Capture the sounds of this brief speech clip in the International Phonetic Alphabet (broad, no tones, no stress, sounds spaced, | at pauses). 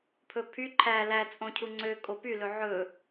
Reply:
pʰ ɵ pʰ y ǃʰ æ l æ t͡sʼ õ cʰ u ŋ͡ǀ ø kʼ o p y l ɵ ʕ ɵ